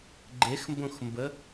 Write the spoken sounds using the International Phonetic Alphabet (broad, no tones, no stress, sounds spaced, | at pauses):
ɡ͡ǃ e x m b õ x m b ə